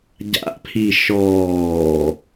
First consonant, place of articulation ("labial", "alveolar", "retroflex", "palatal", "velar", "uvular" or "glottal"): palatal